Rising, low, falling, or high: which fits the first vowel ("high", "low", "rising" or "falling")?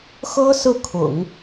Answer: high